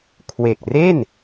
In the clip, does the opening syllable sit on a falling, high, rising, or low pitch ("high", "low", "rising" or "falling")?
low